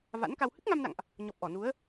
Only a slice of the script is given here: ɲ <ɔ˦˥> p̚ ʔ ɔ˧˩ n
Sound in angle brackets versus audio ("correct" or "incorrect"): incorrect